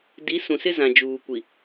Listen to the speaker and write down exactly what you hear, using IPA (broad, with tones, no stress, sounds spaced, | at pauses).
d i˨˦ s ũ˨ s ɪ˦ z ã˨ d͡ʒ uː˨ kʷ i˨